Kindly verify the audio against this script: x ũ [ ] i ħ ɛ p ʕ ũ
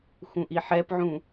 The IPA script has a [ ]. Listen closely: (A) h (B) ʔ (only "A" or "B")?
B